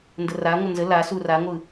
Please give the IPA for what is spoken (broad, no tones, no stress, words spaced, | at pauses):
ndəraŋʷə nzə lasu raŋʷɯ